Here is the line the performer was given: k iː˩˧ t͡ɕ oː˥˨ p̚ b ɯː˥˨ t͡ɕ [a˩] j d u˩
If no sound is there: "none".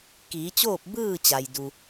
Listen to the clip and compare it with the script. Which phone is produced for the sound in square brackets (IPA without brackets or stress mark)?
a˩